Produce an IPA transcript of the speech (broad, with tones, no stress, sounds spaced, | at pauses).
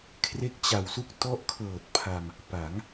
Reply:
kʰ r e˦˥ k̚ t͡ɕ a˨˩ w s u˥˩ k̚ t ɔ˦˥ ʔ kʰ ɤː˨˩ t̚ pʰ a˧ m | p a˩˦ ŋ